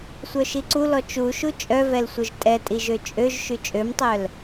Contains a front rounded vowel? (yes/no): yes